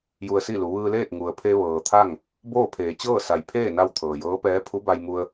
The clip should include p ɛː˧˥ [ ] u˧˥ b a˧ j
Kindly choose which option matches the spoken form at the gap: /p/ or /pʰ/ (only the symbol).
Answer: pʰ